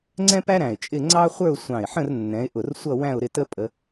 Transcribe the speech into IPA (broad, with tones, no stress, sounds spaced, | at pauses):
ŋ͡ǀ ɛ̃˥ p æ˥ ɾ æ̃˧˩ ɪ̯ t͡ʃʼ ɪ˥˧ ŋ͡ǀ ɑ˥ χʷ ə˞˥˧ ʊ̯ sʷ ɑ̃˧˩ ɪ̯ ħ ə̃˥˧ r nː ɛ̃˨˦ ɪ̯ ʔ ʊ˧˩ r sʷ ʌ˥˧ w æ̃˥˧ ʊ̯ ɾ ɪ˥˧ t ə˥ pʼ ə˨˦